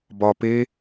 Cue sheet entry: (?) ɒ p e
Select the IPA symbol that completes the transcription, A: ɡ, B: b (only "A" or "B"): B